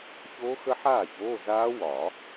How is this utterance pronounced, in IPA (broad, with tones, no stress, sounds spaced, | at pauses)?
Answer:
ç oː˦˥ x ə˦˥ ħ aː˥˩ ç oː˧˥˧ z aː˦˥ w ɒ˨˩˦